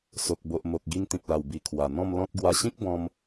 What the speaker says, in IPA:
so˨k̚bo˨ʔ mo˨k̚ ɡi˧ŋt̪ĩ˨p̚la˨˩w bi˨˩ kʰwa˨˩n̪ɔ̃˥˧mlɔ̃˦t̚ ɡwa˧ɕĩ˦k̚bɔ̃˧m

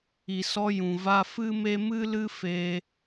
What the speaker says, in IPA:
i˨sɔ˧jũ˨va˧ fɨ˦me˦ mɨ˦lɨ˦fe˧

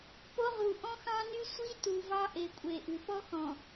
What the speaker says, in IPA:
po˦ʁu˨ ʔɔ̃˦xɑ̃˦ny˦ sʷi˦ tu˨vɑ˦ ʔe˨kʷʼe˨ʔʉ˨ pɔ˦xɔ̃˨

